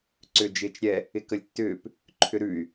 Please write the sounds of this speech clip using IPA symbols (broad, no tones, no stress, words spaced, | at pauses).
ǀʏːd͡ʒɪːt͡ʃɾʲɛ | ɪkəlʲtːʏːp | ǃʰʏɾʉy̯